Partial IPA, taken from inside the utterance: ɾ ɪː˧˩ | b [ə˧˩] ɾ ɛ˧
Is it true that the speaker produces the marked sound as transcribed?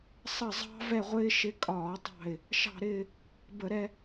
no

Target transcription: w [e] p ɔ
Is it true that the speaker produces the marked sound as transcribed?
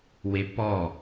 yes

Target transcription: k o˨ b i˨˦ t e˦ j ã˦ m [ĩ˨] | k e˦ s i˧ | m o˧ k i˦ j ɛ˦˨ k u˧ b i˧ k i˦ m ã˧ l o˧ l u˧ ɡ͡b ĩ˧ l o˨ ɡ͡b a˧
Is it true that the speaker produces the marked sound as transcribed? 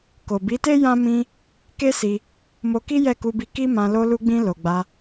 no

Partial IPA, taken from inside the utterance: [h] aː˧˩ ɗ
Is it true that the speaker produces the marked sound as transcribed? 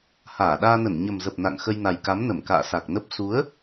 yes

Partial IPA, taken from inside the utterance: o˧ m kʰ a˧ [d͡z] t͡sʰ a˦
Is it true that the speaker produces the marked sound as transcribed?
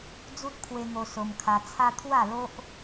no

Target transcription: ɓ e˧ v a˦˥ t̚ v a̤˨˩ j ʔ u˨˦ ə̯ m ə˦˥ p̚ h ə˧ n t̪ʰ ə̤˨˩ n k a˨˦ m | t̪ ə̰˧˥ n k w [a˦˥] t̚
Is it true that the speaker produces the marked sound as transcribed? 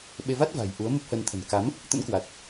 no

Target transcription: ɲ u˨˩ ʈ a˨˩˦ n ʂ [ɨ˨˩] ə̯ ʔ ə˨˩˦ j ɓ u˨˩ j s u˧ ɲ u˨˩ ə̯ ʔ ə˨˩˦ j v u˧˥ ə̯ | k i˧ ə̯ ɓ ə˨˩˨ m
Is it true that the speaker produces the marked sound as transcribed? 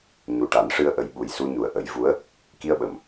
no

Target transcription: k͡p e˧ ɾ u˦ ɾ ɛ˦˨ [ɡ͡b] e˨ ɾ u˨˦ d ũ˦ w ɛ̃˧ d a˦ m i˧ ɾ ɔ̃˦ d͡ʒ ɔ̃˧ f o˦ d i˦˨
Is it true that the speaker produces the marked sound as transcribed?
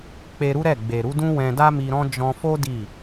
yes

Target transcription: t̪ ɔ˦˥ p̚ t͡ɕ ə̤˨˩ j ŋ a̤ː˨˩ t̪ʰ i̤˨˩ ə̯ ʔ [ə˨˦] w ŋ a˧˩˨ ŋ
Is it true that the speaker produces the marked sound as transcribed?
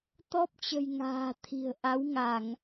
no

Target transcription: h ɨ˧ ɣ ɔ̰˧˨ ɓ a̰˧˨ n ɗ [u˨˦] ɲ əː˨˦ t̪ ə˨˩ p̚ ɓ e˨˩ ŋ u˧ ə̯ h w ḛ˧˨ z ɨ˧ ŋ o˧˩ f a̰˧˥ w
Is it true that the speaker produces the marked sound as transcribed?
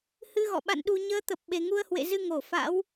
no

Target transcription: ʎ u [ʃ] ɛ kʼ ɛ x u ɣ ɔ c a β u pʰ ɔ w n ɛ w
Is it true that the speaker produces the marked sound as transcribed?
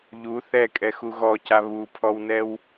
no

